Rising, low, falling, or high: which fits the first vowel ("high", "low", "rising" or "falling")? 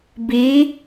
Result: rising